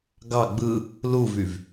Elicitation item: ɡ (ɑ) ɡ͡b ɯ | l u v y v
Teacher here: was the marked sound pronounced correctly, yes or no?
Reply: yes